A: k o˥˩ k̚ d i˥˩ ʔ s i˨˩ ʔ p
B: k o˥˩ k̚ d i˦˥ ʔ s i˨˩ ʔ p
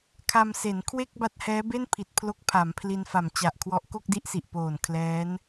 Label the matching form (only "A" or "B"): A